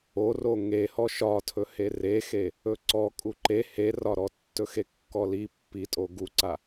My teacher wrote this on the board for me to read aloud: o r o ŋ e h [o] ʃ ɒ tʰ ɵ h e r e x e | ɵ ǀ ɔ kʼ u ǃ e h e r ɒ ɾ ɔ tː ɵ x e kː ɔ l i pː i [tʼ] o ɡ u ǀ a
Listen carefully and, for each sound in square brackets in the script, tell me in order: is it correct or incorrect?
incorrect: ɔ, correct

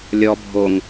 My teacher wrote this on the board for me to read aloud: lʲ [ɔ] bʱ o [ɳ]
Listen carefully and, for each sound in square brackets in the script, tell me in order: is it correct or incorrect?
correct, incorrect: ŋ

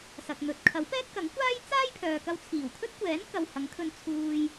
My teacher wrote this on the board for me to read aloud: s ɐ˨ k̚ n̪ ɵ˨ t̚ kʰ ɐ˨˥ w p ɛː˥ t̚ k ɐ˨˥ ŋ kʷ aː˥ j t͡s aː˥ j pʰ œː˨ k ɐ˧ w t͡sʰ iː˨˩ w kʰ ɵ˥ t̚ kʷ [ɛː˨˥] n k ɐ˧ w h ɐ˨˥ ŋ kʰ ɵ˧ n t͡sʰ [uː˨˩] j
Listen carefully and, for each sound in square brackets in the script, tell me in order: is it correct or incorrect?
correct, incorrect: uː˧

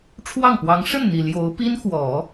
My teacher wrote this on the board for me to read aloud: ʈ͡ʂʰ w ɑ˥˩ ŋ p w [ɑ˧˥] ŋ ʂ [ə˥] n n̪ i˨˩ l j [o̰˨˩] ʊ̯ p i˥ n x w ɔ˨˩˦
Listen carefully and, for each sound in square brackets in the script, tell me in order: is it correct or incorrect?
correct, incorrect: ə˥˩, incorrect: o˧˥

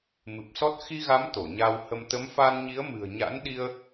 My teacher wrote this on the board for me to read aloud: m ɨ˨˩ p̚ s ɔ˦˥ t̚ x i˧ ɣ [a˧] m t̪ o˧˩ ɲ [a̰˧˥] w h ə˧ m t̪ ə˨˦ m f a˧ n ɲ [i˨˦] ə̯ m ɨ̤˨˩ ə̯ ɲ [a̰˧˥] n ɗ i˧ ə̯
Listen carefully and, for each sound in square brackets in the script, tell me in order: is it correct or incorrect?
incorrect: a˨˦, incorrect: a˧, correct, correct

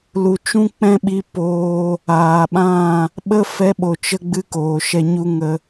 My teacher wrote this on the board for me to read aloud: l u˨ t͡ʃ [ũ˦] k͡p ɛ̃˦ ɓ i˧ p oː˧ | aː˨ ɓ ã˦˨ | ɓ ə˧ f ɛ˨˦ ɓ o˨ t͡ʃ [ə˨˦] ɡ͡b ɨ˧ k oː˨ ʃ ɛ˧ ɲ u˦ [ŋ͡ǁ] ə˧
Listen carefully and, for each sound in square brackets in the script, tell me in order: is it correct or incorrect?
correct, incorrect: ə˧, incorrect: ŋ

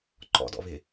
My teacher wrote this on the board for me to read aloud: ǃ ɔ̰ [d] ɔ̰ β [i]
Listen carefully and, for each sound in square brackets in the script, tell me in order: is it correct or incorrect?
correct, incorrect: ɪ

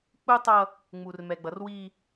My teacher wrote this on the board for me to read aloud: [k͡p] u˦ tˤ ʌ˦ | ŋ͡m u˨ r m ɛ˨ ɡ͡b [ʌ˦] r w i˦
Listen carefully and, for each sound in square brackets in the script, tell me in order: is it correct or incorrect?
correct, incorrect: ʌ˨˦

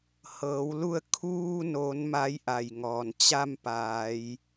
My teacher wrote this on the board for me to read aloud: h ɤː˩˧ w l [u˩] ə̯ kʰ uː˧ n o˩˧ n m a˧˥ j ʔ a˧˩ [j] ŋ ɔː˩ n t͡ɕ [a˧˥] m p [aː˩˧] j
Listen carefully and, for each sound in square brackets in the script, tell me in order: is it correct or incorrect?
incorrect: u˧, correct, incorrect: a˥˨, correct

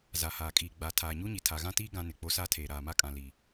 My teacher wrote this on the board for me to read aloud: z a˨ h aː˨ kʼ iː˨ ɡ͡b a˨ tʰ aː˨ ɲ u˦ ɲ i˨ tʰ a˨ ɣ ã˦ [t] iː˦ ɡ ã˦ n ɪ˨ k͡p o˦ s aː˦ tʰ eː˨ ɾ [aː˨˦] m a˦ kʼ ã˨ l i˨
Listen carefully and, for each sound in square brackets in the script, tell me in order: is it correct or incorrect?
correct, incorrect: aː˨

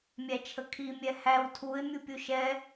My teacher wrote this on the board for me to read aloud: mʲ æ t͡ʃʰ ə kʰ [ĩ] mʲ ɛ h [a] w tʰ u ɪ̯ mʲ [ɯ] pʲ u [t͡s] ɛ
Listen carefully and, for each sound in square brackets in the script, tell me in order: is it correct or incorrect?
incorrect: i, incorrect: æ, incorrect: u, incorrect: ʃ

